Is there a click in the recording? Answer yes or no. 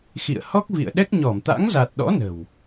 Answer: no